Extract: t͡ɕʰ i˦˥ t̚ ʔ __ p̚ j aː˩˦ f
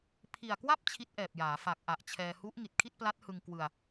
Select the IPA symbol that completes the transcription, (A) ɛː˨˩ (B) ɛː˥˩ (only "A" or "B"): A